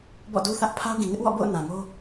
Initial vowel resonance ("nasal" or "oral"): oral